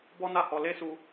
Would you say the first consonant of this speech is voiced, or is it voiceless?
voiced